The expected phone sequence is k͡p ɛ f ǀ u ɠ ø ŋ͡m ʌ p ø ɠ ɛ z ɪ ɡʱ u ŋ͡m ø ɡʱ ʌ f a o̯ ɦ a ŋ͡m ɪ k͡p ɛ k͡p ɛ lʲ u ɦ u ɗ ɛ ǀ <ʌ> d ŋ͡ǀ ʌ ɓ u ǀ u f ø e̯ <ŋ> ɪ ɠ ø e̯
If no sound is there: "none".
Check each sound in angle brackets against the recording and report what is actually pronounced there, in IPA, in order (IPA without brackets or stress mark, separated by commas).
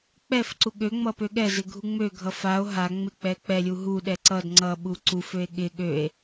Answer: ʌ, ɠ